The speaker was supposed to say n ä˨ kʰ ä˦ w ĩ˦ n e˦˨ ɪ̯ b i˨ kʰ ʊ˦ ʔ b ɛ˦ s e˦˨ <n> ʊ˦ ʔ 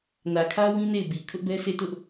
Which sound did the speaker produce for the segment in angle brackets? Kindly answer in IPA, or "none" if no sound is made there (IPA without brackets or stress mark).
t